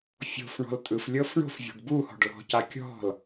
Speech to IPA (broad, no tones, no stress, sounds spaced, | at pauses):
fʲ o̤ f ɳ ɔ̤ l tʼ ɯ f lʲ ɤ f ɳ o̤ f vʲ o̤ ɖ b u h ɔ̤ ɖ l ɔ̤ c a kʲ ɔ̤ l